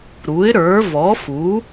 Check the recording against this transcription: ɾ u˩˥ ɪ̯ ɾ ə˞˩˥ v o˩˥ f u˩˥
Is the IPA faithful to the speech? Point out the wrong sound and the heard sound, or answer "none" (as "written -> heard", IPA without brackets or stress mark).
o˩˥ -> ɔ˩˥